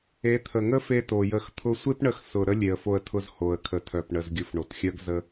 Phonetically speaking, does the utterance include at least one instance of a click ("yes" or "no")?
no